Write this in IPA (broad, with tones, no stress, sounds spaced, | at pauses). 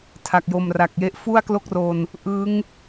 tʰ a˨˩ k̚ j o˨˩ m r a˨˩ k̚ j e˦˥ ʔ f u˥˩ a̯ k l o˥˩ k̚ r o˧ n | ʔ ɯ˦˥ ŋ